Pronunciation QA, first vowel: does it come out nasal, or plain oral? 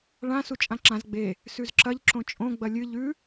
nasal